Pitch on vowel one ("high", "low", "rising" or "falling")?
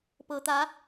low